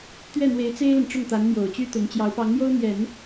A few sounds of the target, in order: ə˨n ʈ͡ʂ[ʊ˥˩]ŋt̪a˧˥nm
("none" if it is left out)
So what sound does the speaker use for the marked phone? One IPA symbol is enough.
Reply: ʊ˥˩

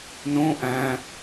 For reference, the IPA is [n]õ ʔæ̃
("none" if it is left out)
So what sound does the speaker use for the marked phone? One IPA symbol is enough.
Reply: n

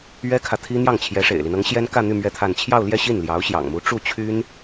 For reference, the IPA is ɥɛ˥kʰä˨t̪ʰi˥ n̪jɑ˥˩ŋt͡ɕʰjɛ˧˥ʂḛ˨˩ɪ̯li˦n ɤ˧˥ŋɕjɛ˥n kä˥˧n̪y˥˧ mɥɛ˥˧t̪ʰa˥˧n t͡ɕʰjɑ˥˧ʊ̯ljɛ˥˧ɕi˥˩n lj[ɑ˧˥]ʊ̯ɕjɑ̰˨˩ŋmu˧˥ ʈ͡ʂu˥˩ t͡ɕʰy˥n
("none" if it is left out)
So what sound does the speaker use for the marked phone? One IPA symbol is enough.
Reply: ɑ˧˥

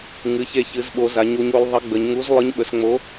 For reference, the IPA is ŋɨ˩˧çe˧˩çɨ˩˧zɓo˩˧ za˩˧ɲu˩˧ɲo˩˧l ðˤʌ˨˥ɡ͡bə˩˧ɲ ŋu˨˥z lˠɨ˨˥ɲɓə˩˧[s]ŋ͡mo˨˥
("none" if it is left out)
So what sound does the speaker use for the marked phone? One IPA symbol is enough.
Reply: s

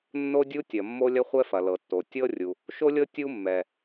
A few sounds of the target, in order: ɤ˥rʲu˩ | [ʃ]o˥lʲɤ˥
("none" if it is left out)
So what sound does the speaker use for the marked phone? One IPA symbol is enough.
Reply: ʃ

